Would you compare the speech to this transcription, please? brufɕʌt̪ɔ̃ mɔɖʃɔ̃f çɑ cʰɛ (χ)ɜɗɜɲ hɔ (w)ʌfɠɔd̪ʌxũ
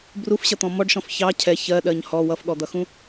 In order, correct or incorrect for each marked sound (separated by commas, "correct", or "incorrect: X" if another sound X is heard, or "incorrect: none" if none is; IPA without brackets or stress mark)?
incorrect: ç, correct